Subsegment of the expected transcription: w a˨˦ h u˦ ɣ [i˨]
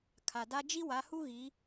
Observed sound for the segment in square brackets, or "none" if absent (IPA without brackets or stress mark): i˨˦